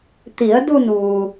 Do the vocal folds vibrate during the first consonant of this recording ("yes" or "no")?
no